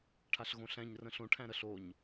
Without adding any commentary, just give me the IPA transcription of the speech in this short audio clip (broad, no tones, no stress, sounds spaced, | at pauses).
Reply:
ʈʰ a ɬ ɣ õ ɬ æ̃ ɲ r ə̃ ɬ õ ʈʰ æ̃ ɾ ə ɬ o ɲ